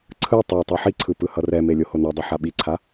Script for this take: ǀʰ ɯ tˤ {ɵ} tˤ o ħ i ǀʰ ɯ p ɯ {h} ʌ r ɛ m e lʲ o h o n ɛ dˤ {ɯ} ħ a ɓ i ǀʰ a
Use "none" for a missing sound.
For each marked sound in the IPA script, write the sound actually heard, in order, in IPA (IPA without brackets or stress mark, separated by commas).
o, h, ɯ